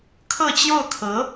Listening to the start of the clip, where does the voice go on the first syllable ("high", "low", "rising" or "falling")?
falling